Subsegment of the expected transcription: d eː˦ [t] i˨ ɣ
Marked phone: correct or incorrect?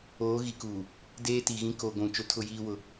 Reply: correct